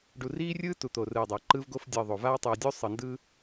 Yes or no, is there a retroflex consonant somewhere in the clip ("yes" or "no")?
yes